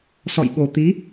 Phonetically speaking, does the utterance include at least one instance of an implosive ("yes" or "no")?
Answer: yes